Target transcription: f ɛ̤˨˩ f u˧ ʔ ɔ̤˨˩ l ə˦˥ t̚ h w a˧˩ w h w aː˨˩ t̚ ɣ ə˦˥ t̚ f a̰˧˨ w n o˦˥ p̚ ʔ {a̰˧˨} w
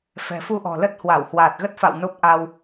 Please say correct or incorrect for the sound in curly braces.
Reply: incorrect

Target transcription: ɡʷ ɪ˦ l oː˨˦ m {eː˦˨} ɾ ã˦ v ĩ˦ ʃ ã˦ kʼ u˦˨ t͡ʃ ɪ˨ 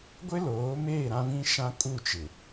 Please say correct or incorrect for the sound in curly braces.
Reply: correct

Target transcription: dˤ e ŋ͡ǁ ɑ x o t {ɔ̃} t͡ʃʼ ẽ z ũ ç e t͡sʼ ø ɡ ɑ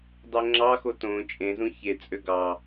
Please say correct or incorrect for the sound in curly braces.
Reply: incorrect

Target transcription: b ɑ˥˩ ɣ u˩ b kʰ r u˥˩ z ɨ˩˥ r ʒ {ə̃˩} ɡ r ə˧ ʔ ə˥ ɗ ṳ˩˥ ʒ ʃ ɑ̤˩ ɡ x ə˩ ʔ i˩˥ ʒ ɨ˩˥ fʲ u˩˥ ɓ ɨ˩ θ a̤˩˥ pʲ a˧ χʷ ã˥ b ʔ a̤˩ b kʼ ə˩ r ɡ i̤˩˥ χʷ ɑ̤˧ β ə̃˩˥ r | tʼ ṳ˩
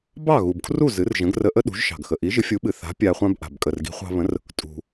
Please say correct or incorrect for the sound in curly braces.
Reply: incorrect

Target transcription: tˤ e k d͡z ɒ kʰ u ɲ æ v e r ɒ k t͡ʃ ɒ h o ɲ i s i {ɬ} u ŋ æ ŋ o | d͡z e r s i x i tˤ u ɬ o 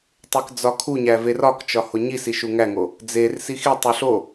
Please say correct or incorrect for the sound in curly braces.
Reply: incorrect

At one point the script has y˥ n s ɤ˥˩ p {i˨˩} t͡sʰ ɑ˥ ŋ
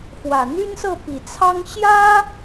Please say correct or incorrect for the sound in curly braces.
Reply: correct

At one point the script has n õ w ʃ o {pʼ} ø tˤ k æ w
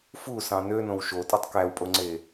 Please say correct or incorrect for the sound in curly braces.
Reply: incorrect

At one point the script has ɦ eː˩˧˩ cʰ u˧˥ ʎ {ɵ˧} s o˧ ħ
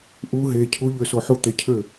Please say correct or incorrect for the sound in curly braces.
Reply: incorrect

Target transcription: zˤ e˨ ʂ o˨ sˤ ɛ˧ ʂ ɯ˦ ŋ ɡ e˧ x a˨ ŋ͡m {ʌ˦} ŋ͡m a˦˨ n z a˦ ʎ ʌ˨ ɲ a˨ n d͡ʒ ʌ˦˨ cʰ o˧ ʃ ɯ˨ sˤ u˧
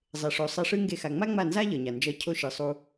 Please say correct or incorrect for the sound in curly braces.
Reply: incorrect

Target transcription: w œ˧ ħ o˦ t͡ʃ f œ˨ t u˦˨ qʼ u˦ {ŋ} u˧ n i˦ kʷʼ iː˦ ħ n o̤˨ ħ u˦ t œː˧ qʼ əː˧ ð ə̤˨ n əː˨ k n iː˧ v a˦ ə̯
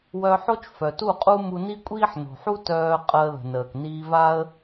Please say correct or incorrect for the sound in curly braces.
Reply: incorrect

